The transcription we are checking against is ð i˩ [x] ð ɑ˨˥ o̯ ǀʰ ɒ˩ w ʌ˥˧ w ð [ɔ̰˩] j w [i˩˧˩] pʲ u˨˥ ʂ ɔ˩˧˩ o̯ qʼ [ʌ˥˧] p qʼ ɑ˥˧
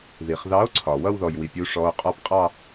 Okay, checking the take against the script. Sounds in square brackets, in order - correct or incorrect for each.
incorrect: χ, incorrect: ɔ˩, incorrect: i˩, incorrect: ɒ˥˧

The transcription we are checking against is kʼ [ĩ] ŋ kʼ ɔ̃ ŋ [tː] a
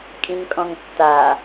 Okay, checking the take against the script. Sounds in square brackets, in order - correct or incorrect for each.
correct, correct

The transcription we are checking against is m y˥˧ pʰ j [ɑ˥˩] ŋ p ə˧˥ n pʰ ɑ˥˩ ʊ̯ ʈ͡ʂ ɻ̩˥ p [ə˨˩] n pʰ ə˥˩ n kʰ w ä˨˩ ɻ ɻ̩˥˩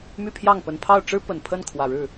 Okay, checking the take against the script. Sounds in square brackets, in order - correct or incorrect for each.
correct, correct

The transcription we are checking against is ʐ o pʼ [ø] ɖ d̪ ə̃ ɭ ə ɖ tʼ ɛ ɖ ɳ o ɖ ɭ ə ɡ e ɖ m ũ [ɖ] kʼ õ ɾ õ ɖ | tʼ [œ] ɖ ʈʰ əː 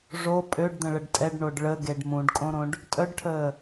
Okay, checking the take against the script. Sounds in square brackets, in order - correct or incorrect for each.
correct, correct, correct

